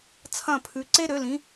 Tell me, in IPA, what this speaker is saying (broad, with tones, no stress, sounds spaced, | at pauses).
t͡sʰ ɐ̃˥˨ pʰ ʉ˨˥ ǀ e˥ ɾ ø˨˥ l ĩ˨˥